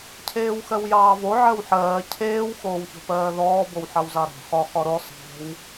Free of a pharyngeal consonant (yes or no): no